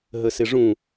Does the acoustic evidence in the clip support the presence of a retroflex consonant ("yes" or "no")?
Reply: yes